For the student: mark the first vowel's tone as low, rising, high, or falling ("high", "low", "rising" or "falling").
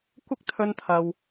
high